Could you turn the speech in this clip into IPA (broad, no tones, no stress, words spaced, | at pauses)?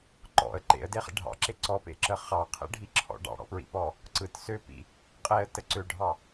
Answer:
ǃɔ̰ə̯ ǃḛə̯deχḛ ɖʱɑ̰ǁe ǀɔpḛǁə χɑqʰḛɖʱiǁʰɔ̰ ɖɑ̰ɽɔ̰pɹḭpɔ | ǀɯt søpḭ | qʼeə̯tə ǀøɖʱɑ